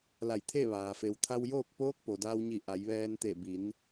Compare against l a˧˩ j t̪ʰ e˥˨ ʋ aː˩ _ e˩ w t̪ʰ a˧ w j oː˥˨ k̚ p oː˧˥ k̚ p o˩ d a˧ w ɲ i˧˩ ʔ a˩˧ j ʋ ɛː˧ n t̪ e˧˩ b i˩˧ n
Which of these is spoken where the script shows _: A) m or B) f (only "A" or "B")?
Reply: B